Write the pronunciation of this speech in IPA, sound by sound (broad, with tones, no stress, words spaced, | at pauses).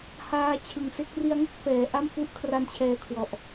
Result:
haː˦˥t͡ɕʰɯ˨˩ŋ se˦˥k̚ri˦˥a̯ŋɯ˥˩k̚ fɛː˩˦ʔa˥˩mfu˦˥ʔkʰra˦˥n t͡ɕʰɛː˦˥kʰwɔ˨˩ʔ